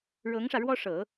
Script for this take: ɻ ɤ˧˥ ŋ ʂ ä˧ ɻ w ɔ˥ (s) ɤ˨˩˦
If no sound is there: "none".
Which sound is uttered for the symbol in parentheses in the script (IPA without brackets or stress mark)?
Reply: ʂ